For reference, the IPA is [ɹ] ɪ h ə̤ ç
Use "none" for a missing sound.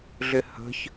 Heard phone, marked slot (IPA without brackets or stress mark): ɮ